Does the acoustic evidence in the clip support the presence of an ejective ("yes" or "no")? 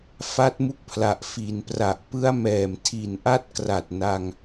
no